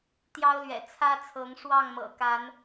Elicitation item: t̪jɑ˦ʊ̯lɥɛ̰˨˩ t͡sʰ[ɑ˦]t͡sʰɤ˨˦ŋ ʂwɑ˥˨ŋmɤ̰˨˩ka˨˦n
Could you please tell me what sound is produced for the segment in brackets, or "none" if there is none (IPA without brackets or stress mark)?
ä˦